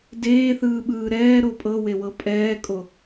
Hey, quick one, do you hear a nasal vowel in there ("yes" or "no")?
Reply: no